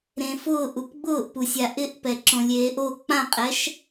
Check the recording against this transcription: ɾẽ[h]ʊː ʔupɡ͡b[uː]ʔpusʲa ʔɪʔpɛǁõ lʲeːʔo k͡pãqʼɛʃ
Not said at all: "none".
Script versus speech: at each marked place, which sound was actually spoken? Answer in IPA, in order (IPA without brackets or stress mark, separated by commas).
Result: f, ʊː